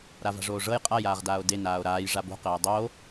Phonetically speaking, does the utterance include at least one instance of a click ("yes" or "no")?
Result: no